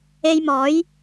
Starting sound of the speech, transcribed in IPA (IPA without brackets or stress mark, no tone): e